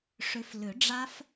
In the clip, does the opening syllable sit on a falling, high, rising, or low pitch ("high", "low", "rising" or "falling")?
rising